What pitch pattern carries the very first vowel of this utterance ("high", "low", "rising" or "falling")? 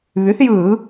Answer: rising